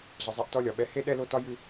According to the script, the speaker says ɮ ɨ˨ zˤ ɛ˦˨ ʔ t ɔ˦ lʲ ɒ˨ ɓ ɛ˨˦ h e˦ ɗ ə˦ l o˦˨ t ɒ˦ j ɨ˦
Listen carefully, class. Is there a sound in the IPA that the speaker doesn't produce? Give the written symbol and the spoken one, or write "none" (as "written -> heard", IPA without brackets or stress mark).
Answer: ə˦ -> ɛ˦